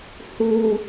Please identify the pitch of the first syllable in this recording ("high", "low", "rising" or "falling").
low